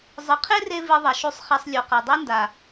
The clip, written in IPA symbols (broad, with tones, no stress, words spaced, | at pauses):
zˤɨ˨qʰe˦re˧ vi˧ðˤɐ˨ʃu˧sˤ χɛ˧sˤlʲo˨qɐ˨ dˤi˦nda˨